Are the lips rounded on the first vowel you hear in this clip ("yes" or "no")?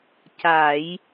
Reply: no